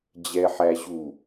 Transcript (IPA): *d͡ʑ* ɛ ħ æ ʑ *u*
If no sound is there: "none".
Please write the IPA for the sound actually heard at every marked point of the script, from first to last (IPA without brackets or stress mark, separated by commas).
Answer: d͡ʑ, u